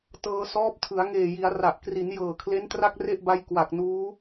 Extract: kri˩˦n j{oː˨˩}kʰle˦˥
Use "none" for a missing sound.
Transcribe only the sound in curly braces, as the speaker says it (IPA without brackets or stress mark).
ɤː˨˩